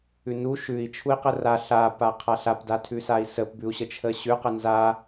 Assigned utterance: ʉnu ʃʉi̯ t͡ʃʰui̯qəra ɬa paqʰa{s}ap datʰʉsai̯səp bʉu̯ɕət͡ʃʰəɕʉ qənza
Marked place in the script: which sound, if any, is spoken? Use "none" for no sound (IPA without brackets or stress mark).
ɬ